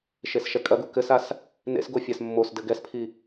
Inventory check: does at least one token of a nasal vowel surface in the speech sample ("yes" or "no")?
no